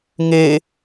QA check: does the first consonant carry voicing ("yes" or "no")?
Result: yes